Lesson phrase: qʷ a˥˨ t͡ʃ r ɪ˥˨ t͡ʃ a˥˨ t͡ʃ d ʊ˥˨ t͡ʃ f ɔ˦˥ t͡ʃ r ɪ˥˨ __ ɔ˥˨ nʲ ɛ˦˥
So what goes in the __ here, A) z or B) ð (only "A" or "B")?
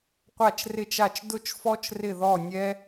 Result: B